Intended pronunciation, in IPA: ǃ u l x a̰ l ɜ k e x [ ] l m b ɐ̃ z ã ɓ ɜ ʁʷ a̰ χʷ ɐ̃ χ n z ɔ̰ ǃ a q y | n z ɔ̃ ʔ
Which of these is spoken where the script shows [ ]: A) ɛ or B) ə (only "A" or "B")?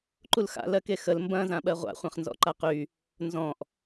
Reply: B